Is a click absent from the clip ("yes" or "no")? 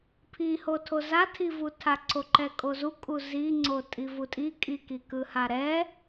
no